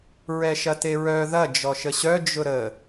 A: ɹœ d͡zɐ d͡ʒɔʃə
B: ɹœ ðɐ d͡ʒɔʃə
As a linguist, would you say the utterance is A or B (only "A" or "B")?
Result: B